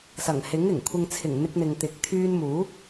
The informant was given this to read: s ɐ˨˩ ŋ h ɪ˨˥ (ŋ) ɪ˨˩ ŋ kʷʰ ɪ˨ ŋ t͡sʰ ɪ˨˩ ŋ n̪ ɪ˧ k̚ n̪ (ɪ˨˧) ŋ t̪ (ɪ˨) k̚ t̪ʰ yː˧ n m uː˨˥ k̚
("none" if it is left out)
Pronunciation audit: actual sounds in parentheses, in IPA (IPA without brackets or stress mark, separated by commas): ŋ, ɪ˨, ɪ˨˥